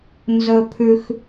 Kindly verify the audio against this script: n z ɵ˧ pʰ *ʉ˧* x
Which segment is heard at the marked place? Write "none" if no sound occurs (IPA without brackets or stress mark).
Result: ʉ˧